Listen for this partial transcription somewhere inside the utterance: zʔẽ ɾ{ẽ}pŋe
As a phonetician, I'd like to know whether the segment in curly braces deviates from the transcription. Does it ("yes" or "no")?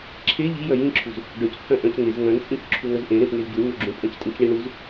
no